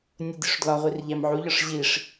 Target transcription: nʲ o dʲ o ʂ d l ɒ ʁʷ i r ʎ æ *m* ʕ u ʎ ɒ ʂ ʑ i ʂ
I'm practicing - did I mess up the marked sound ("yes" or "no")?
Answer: no